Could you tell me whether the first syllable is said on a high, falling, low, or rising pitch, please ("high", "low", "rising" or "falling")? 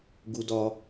high